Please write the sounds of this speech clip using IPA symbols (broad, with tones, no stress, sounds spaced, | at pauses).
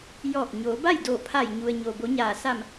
j ɔː˧˩ k̚ ɲ oː˩˧ b a˥˨ j d o˧˩ pʰ a˧˩ j ɲ u˩ ə̯ ɲ o˩ b o˩˧ ɲ aː˩ s a˧˩ m